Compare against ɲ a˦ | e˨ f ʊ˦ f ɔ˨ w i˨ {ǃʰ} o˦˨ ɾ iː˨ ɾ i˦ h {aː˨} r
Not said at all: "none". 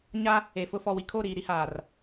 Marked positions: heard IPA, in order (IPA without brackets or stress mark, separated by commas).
kʰ, aː˨